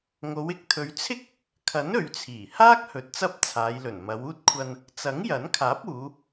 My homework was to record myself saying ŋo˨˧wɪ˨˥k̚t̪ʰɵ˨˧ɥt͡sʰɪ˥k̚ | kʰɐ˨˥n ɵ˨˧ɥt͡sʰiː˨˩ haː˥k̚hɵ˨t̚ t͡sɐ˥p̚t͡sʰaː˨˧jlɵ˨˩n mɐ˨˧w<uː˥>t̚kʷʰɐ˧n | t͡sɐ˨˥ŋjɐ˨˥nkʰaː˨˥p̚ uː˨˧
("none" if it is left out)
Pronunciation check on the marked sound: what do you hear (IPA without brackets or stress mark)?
uː˥